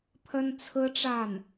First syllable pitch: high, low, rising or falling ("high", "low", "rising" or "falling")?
high